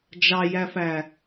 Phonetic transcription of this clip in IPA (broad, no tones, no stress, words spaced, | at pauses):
d͡ʒɑjæfæ